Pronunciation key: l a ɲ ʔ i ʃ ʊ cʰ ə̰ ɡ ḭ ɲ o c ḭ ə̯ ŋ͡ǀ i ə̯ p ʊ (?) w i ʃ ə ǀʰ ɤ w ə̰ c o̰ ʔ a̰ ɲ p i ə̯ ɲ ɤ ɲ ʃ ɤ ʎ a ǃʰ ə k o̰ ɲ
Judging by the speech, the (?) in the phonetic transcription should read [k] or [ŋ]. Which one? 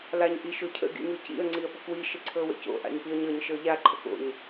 k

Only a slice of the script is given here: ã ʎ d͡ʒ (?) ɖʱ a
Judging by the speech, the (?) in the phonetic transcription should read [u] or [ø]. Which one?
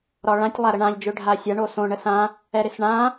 ø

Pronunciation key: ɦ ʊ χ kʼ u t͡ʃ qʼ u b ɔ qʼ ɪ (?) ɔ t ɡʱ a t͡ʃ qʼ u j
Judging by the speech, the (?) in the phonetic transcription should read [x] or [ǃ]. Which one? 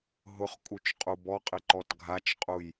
ǃ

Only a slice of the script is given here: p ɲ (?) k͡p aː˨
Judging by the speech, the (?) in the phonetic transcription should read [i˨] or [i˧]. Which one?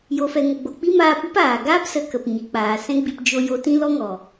i˨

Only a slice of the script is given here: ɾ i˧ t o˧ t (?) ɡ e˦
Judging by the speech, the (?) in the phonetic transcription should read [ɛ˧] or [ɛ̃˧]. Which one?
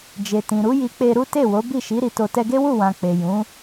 ɛ˧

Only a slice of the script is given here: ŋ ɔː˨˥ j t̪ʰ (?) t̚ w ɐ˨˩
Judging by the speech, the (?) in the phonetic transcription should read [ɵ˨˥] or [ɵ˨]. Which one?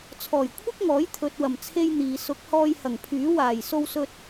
ɵ˨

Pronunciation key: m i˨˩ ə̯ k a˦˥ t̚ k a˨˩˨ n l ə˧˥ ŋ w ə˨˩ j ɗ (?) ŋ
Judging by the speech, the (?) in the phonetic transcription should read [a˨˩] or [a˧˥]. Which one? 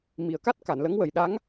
a˧˥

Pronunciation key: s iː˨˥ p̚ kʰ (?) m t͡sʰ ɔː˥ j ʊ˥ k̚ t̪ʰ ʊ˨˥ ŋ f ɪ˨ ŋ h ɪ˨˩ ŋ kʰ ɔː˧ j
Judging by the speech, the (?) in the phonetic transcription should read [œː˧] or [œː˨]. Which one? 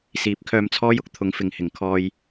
œː˧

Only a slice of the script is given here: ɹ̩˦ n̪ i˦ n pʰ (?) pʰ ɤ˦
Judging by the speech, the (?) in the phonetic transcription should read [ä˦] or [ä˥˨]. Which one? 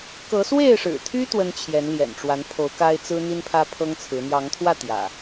ä˦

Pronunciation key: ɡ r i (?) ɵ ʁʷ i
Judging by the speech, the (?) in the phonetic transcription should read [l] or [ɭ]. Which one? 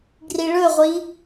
ɭ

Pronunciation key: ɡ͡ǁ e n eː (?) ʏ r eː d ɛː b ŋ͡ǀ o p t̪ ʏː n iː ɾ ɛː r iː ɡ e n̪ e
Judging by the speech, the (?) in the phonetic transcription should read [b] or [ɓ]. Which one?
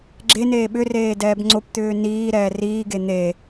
ɓ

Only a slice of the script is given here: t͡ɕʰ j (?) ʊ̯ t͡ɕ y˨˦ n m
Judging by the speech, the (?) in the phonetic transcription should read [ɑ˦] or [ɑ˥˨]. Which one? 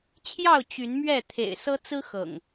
ɑ˥˨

